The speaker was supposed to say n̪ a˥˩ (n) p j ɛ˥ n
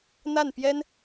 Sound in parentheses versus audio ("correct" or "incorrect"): correct